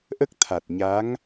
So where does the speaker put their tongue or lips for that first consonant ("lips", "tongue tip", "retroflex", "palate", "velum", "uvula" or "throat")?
throat